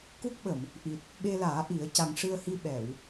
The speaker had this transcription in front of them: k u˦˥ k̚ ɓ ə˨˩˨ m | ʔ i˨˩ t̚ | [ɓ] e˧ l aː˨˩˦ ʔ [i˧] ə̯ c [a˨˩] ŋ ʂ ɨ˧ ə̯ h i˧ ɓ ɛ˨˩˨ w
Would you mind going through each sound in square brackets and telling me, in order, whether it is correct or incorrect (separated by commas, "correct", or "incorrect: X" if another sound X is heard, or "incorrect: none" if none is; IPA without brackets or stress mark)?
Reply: correct, incorrect: i˨˩˦, correct